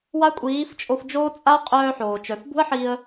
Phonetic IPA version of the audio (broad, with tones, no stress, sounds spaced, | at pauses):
w a˦ kʷʼ iː˨˦ f t͡ʃʼ o˧ f d͡ʒ oː˦ t͡sʼ a˦ qʼ œː˧ ħ oː˨ t͡ʃ œ˨ f b ṳ˦ ə̯ ħ i˧ ə̯